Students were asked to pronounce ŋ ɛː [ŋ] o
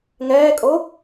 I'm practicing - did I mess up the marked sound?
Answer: yes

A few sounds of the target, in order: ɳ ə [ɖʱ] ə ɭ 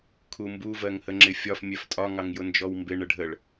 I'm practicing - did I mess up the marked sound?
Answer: no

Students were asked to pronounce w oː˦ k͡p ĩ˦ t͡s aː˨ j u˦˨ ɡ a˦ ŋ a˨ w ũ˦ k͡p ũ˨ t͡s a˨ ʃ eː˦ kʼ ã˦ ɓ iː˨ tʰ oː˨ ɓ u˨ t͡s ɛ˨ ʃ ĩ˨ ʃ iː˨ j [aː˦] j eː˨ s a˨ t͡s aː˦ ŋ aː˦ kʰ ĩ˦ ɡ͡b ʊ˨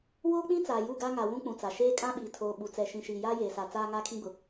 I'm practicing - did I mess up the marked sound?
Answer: no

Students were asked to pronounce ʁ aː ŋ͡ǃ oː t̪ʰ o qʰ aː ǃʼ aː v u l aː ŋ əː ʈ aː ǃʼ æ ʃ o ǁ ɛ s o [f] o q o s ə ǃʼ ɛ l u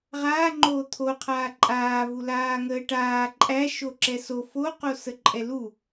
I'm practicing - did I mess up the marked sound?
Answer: no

